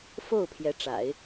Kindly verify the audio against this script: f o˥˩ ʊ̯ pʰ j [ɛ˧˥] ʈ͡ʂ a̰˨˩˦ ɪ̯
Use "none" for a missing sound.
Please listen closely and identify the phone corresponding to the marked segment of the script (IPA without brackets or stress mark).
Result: ɛ˧˥